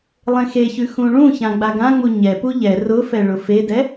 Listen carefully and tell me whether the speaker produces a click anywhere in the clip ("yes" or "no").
no